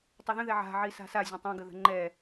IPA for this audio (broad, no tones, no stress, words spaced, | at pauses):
tˤʊðə̃ðɛ ʕa̤ʕi sa̤sa zʲə̃tˤãɡəðə̤ ŋ͡ǃɛ